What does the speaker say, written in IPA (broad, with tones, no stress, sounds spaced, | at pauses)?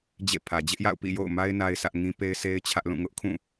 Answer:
d͡ʑ ḛ˦˨ pʰ ä˨ d͡ʑ ɪ˦ ʔ j a̰˦˨ ʊ̯ p ḭ˦˨ j o̰˦˨ ʊ̯ m a˦ ɪ̯ n a˦ ɪ̯ sʰ ä˦ ʔ ŋ ĩ˦ p e˦ ɪ̯ sʰ e˦ ɪ̯ t͡ɕʰ ä˦ ʔ l ũ˦˨ ŋ ʊ˦ ʔ kʰ ũ˦˨